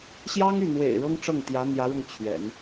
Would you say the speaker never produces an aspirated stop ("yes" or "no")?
no